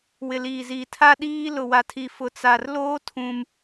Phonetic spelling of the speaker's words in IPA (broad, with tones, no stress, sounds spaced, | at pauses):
w ɪ˨ l iː˨ z iː˨ tʰ a˦ ɗ iː˦ l ʊ˨ w a˨ tʰ i˨ f ʊ˨ t͡s a˨ r l oː˦ tʰ ũ˦ m